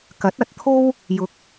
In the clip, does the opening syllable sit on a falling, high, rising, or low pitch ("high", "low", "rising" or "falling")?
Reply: rising